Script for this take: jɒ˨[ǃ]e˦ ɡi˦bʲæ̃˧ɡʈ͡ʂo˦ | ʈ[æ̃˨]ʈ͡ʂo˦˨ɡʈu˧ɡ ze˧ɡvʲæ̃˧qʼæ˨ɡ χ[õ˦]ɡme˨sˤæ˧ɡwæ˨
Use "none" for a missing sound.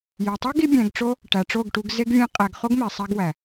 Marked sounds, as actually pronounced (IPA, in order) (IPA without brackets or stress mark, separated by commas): tˤ, æ˨, o˦